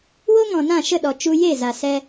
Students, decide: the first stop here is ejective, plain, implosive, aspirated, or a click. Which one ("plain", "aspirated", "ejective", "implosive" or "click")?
implosive